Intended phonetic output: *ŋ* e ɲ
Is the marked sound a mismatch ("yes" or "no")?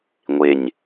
yes